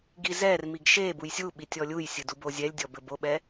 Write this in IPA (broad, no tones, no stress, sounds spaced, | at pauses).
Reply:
ɡ i z ɛ r m i ɡ ʃ e b u j sʲ u ɓ i tʲ ɔ lʲ u j sʲ ɨ d u b o zʲ ɛ lʲ dʲ ɔ b ɘ b o ɓ ɛ